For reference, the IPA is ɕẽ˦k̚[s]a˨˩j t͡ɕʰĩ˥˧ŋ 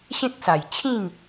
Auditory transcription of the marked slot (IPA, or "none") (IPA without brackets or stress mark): s